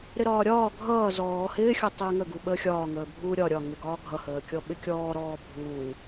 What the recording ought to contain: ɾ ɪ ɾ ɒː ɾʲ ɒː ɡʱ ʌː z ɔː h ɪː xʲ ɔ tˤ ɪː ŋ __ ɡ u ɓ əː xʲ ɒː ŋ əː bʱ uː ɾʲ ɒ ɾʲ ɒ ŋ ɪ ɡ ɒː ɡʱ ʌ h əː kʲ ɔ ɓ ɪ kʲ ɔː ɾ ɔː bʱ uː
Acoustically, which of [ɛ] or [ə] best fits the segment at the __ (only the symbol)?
ə